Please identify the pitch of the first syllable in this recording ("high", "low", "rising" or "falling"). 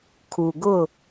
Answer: low